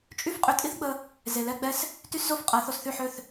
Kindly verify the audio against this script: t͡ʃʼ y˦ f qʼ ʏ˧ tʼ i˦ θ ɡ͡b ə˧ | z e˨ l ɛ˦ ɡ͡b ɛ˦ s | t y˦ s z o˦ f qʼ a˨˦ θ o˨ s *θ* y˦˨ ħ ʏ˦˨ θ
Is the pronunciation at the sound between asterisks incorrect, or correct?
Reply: correct